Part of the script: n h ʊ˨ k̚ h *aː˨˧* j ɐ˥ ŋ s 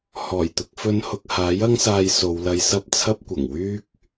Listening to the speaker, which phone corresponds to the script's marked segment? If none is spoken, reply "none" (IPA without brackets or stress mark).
aː˨˥